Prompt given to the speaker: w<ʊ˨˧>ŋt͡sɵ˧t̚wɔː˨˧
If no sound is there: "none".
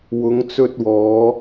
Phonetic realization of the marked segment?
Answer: ʊ˨˧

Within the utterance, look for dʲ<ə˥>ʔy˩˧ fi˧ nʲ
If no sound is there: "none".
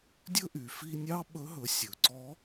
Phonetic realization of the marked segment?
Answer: ɵ˥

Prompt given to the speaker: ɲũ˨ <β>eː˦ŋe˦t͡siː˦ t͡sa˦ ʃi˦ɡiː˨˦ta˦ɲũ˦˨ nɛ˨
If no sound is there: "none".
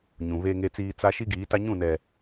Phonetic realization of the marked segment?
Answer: β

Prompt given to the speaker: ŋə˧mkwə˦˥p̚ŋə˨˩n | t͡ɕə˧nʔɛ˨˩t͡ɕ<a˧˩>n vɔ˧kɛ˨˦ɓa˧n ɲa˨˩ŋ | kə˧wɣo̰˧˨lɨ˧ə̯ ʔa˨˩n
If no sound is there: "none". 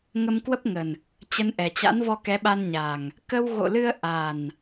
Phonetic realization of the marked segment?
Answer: a̰˧˥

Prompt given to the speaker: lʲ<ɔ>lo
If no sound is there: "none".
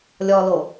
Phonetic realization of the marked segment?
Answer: ɔ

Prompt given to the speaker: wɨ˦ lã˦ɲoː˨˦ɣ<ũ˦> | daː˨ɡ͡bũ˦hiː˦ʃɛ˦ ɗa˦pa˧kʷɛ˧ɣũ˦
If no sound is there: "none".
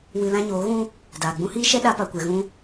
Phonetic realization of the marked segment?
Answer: ũ˦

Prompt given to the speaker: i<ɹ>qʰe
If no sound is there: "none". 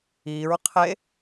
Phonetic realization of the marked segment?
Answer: ɹ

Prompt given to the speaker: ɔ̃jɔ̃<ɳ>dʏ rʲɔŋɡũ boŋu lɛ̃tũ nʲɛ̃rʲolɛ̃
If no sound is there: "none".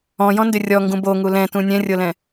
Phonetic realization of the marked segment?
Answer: n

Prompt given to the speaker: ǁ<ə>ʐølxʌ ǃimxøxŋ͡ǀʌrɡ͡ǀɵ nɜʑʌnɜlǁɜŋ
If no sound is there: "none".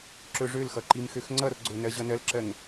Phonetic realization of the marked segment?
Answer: ɵ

